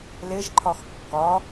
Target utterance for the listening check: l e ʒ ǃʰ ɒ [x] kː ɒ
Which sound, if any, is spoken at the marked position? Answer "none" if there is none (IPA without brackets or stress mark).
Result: x